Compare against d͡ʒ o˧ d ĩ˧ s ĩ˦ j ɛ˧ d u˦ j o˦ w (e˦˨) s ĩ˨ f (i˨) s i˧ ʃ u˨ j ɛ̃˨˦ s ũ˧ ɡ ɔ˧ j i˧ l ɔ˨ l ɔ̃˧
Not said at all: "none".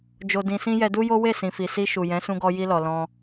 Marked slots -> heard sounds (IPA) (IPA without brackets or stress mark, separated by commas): e˦˨, i˨